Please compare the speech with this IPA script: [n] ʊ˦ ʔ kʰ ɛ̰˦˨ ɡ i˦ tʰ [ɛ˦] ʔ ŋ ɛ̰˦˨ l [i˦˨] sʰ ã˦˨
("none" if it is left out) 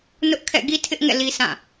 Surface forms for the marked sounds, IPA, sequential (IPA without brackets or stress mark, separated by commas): n, ɪ˦, i˦